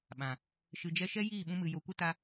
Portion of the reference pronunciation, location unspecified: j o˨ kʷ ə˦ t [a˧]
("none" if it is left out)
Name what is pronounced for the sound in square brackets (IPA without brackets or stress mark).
a˧